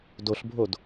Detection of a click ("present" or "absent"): absent